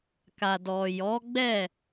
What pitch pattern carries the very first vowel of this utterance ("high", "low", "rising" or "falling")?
low